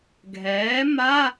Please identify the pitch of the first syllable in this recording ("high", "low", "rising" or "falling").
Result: rising